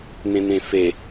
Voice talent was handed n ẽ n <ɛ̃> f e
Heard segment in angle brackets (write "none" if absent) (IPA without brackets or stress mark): ẽ